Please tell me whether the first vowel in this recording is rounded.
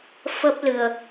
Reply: no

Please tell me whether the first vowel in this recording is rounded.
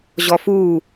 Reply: yes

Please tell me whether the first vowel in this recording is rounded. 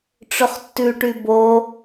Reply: yes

